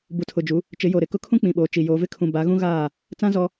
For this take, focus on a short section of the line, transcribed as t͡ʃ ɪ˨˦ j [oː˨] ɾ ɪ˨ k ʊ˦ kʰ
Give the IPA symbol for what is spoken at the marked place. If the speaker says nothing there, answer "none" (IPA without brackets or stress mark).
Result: o˨